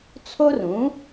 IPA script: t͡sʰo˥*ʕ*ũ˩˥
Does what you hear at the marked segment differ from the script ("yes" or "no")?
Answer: yes